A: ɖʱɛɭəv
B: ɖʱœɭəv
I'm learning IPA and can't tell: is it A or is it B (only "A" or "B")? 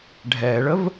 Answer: A